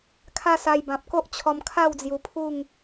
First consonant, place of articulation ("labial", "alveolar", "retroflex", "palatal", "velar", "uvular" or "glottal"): velar